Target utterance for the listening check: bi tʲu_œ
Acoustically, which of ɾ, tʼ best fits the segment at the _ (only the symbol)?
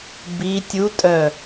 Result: tʼ